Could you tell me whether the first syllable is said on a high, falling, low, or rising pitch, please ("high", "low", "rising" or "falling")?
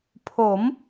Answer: rising